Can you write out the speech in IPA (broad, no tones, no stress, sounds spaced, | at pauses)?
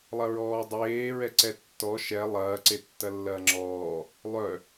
lˠ ɐ ɹ ɔː dˤ eː ɹ ɛ ǀ ɛ tː ɔ ʃ ɛ lˠ ɐː ǀ e tː ɐ lː ɐː ŋ͡ǁ ɔː | lˠ œ